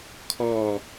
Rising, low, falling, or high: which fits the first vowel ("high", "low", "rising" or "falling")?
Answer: falling